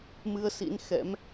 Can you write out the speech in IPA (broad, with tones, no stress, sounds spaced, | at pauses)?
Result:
m ɨ˧ ə̯ s ḭ˧˥ n x ɛ̰˧˥ m